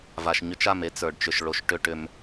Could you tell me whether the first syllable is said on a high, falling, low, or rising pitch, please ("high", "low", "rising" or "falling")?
low